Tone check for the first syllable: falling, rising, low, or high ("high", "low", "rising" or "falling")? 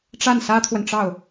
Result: falling